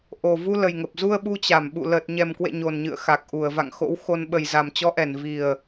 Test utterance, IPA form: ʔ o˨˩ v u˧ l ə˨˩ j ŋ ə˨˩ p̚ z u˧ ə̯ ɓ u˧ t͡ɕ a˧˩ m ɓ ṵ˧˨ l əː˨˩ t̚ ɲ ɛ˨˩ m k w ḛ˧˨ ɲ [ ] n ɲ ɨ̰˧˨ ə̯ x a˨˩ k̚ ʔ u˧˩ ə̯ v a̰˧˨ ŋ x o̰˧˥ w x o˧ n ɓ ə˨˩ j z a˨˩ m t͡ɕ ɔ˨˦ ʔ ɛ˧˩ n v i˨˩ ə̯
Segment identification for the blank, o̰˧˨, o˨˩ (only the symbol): o˨˩